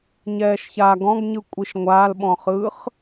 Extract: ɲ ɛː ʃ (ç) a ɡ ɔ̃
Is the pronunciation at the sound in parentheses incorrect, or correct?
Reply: correct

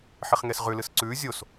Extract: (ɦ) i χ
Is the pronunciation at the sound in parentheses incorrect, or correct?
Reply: incorrect: ħ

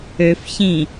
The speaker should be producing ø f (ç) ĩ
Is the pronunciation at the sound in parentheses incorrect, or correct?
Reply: correct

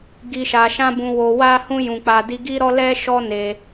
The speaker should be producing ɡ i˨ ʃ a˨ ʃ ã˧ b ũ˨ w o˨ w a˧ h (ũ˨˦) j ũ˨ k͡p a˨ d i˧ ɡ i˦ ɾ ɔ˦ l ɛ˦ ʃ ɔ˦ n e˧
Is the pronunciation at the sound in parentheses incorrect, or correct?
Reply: incorrect: ũ˧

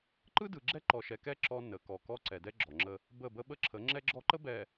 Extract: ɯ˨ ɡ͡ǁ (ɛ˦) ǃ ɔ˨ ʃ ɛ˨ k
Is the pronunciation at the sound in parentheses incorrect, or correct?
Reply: correct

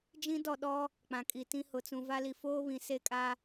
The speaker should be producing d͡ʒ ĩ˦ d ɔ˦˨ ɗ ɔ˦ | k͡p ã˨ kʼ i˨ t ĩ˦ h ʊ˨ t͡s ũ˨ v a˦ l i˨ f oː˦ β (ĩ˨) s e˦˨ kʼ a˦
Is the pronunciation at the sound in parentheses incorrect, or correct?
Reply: correct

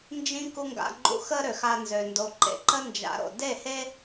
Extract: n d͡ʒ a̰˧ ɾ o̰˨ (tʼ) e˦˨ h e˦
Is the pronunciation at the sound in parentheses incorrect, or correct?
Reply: incorrect: d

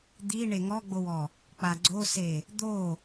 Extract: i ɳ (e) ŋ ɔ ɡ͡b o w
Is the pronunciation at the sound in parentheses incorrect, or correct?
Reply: correct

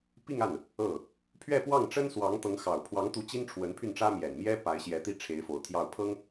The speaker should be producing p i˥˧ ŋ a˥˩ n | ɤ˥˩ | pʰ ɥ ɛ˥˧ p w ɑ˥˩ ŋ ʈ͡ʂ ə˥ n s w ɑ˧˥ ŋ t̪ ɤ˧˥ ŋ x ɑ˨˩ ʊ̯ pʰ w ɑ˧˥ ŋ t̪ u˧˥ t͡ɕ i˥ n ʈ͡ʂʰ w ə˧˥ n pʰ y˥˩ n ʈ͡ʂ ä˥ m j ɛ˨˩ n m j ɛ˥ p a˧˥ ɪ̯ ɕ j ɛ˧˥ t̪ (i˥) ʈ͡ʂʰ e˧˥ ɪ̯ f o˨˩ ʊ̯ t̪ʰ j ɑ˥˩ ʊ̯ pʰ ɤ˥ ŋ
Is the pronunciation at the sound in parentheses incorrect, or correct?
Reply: correct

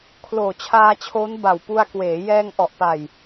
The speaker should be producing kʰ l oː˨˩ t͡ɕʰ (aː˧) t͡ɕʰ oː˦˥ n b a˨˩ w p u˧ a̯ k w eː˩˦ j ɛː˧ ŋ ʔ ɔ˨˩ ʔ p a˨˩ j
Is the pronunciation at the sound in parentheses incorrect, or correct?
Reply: correct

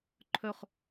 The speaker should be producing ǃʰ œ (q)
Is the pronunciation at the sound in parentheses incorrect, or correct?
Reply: incorrect: χ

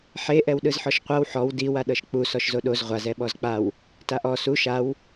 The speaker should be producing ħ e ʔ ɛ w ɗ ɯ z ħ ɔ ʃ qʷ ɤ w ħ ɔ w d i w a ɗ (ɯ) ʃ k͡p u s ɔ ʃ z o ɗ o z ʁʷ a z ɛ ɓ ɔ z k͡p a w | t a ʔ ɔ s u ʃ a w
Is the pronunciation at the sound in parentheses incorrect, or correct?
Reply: incorrect: ɤ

